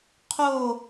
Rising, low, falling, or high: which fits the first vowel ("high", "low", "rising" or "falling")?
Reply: falling